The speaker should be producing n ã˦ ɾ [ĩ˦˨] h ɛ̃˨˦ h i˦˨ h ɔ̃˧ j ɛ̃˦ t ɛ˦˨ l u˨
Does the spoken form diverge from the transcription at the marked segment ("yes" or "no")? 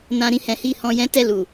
no